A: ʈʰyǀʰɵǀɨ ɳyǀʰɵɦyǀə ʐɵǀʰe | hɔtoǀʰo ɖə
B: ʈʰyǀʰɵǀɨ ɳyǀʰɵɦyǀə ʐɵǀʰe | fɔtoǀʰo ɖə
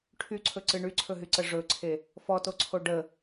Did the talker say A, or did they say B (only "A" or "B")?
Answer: B